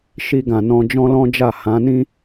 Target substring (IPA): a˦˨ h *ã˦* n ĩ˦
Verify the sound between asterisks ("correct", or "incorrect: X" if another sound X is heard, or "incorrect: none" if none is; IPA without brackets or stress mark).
incorrect: ã˨˦